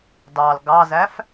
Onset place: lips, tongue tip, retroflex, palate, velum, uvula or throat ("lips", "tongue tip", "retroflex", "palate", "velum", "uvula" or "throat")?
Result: tongue tip